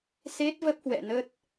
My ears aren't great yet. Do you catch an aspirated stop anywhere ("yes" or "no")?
no